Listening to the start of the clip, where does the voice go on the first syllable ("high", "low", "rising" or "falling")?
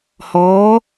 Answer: rising